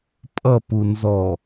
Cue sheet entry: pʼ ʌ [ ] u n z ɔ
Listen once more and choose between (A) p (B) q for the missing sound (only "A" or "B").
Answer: A